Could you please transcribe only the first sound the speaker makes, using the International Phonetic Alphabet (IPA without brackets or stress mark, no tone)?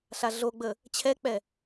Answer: ɬ